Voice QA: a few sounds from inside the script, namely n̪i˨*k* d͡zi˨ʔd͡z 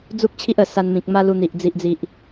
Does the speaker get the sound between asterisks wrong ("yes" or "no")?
yes